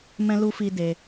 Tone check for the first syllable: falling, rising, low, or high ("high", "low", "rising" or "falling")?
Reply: high